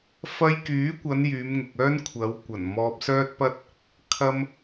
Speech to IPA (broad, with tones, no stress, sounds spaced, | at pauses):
f ɐ˧ j k yː˨˥ kʷ ɐ˨˧ n j yː˨˧ m ŋ ʊ˨ k̚ œː˥ n kʷʰ ɐ˨˧ w kʷ ɐ˨˩ n m ɔː˧ p̚ s œː˥ t̚ p ɐ˥ t̚ | kʰ ɐ˥ m